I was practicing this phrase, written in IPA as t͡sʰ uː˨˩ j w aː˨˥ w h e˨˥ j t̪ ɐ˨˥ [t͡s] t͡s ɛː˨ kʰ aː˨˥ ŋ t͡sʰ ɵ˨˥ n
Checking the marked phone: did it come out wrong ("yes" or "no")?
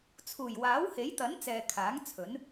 yes